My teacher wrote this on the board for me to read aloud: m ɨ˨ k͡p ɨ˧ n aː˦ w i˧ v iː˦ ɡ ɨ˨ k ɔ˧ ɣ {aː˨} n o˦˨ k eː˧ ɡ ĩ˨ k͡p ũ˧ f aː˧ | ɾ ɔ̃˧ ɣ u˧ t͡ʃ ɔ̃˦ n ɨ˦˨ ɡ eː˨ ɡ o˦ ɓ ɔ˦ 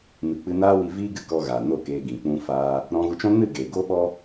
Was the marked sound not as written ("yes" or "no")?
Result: no